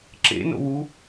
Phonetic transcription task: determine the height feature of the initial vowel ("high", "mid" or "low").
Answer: mid